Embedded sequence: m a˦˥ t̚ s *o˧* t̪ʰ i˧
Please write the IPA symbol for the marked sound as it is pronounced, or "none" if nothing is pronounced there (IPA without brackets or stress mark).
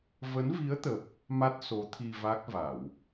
o˨˦